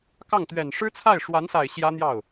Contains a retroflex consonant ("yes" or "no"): yes